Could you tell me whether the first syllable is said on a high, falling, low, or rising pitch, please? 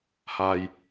low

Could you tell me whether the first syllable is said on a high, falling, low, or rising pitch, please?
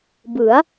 rising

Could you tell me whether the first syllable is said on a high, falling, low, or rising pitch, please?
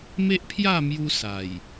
high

